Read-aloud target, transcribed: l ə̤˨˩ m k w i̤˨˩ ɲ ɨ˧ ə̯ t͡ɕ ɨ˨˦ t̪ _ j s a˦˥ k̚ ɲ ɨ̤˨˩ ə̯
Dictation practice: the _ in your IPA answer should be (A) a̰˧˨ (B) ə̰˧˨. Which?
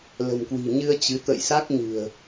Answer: B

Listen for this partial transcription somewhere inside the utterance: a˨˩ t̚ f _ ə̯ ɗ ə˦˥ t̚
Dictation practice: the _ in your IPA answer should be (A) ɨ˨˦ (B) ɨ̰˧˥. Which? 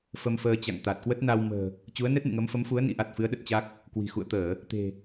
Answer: A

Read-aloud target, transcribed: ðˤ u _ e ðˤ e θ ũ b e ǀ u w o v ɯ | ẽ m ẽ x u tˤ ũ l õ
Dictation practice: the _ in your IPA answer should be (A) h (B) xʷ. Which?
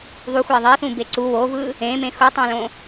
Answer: B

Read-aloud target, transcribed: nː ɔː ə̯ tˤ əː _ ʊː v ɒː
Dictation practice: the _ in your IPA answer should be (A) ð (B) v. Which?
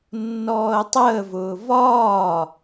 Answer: B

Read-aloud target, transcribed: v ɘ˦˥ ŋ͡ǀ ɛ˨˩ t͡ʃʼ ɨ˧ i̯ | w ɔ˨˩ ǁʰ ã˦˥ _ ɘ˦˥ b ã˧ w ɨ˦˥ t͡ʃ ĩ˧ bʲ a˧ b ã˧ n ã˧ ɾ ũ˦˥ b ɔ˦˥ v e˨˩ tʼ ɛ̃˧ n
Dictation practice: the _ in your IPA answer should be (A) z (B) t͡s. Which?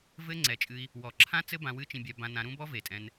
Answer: B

